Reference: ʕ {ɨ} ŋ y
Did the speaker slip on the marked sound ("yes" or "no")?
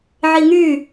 yes